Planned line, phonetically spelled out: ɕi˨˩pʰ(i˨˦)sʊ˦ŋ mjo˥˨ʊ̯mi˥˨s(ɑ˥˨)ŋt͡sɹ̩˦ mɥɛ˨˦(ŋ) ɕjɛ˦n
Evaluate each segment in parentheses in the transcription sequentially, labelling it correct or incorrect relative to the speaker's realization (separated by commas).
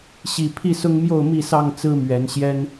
incorrect, correct, incorrect